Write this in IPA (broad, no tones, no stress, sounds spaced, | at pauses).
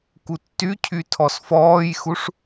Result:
k u tː y cʰ y tʰ ɔ s f ɔː j x u ʂ